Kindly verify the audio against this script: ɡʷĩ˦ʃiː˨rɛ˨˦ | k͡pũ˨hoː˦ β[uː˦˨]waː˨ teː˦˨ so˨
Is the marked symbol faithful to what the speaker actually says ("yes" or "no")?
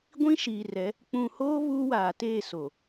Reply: no